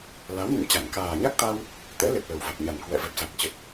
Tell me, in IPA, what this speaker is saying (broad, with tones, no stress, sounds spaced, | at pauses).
l a˨˦ w n ɨ̰˧˨ ŋ t͡ɕ a˧˩ ŋ k aː˨˩ ɲ a˦˥ k̚ t̪ a˧ w | t̪ ɛ̰˧˥ l e˨˩ p̚ l ə˨˩ w v a˨˩ k̚ ɲ a˨˩ n k w ɛ̰˧˨ v ɛ˨˩ p̚ s a˨˩ k̚ t͡ɕ ə˨˩ t̚